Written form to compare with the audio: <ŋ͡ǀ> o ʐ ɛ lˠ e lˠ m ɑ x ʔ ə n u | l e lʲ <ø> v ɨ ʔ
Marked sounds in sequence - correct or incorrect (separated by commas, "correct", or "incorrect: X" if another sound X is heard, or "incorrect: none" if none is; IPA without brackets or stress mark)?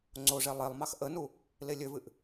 correct, correct